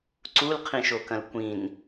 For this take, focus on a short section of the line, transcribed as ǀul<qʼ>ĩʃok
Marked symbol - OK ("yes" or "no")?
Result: no